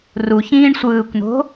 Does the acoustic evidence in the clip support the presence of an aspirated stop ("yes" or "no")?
no